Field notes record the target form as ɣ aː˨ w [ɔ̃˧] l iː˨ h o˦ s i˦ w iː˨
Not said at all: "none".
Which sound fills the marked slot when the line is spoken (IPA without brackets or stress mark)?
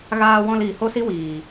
ɔ̃˨